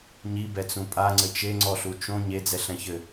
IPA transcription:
ɲibɛt͡sũ pʼaŋ͡ǀɘ t͡ʃeŋ͡ǀɔɬu t͡ʃõ ɲed͡zɛɬɛ̃çɘ

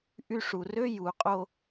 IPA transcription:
ʔy˦ ʂu˨rø˦ ju˨˦qʼo˦

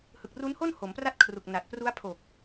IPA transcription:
hɯ˨˩k̚ru˦˥nho˥˩n ho˩˦mpra˥˩t̚kʰru˨˩k̚ na˨˩t̚pru˦˥a̯pʰo˨˩k̚

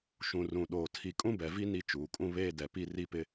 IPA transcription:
ʃũ˨ rũ˨ɗoː˨ tʰi˦ kʼũ˦bɛ˨vi˦ ni˦t͡ʃuː˨kʼũ˦ βeː˦ dɛ˨pi˦ri˦pɪ˦

